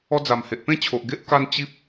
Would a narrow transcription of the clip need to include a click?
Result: no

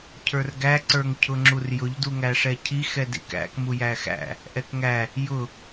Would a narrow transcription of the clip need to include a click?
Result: yes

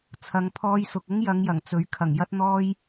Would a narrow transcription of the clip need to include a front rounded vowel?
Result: no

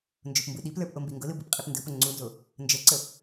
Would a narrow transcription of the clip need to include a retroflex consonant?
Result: no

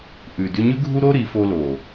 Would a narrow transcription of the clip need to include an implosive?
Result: no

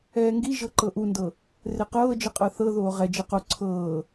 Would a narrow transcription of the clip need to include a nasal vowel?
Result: no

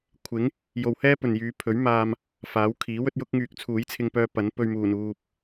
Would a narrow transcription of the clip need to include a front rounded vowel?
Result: yes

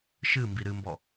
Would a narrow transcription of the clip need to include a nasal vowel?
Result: no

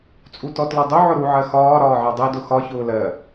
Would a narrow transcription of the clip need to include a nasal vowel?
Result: no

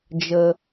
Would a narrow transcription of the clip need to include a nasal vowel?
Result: no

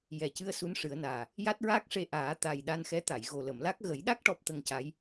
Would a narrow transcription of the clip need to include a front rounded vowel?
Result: no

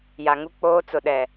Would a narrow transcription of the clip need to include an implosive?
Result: yes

